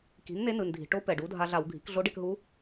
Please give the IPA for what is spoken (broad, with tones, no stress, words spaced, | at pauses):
ki̤˩˥nn̪e˧˥nɯ˩n dʱi̤˩ ʈo˧˥ pɛ˩ɖu˩˥dʱa˧ɮa˧˩˧w ɡʱi̤˩˥k ɮo˧˥ɖe˧kɦu˧˥